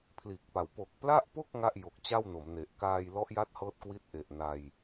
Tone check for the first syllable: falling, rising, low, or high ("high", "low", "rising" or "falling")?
low